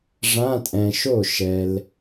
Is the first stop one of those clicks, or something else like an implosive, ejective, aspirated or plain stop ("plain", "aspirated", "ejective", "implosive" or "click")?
ejective